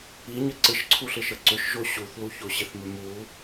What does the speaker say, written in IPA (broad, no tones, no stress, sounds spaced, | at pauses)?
i ɲ ə ǀ ɪ ʃ ǀʰ u ɬ ɪ ʃ ə ǀ ʏ ʃ ʒ o ɕ u θ l u ç o ɕ ɪ θ m ʏ m u